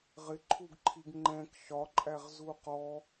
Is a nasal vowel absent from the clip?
no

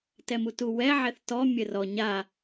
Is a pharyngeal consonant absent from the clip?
no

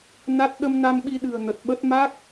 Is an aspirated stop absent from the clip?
yes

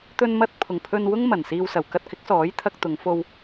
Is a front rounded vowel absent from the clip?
yes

